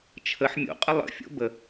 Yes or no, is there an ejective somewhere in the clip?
yes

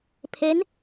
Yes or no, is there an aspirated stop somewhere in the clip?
yes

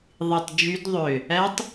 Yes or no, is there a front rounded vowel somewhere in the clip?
yes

